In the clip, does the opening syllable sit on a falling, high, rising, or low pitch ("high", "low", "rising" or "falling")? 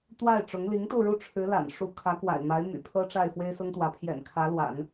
falling